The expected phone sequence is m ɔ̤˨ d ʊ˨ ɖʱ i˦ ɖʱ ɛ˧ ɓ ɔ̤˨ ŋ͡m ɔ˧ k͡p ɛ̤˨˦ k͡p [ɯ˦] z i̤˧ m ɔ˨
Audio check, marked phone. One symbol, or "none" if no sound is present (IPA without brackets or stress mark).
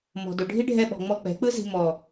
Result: ɯ˦